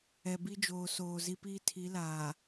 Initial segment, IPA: ɛ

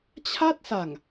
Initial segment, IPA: t͡ɕʰ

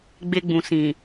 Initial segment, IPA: ɡ͡b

